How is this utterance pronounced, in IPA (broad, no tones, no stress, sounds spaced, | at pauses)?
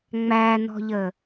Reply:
ŋ͡m æ n ɔ̤ ʎ ə